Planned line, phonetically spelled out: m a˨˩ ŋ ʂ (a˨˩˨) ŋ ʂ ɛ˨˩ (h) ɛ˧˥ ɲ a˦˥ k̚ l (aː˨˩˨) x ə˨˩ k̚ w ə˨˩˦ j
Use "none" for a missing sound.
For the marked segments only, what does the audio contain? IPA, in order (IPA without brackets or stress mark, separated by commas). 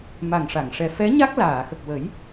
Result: a˨˩˨, f, aː˨˩˨